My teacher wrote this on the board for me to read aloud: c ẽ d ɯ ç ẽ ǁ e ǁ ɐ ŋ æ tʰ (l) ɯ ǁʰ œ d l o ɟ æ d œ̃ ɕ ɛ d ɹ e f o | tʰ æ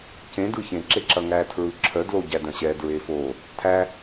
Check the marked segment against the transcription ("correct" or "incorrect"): incorrect